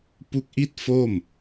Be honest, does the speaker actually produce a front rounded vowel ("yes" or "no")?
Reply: no